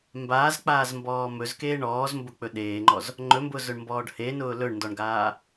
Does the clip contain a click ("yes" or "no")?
yes